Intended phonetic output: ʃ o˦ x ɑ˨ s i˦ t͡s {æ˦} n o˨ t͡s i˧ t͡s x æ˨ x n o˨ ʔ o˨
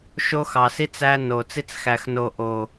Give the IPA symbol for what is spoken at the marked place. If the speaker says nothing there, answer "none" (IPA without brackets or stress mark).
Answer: æ˦